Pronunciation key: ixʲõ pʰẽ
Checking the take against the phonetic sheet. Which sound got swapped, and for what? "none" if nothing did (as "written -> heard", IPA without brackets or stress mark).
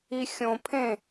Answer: none